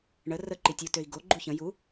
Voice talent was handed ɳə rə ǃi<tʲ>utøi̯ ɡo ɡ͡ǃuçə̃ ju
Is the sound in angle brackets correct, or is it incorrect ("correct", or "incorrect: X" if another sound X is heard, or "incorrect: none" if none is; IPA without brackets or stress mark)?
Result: correct